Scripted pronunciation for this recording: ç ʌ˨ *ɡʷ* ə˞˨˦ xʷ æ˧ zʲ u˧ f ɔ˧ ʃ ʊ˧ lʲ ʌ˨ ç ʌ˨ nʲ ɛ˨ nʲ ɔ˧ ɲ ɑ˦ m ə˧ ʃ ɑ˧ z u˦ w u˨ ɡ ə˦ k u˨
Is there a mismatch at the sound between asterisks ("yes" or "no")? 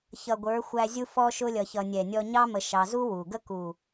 no